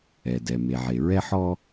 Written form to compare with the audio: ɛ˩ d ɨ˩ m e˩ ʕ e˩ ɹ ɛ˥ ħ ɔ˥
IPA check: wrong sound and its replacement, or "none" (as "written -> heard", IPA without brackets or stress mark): ɨ˩ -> ɛ˩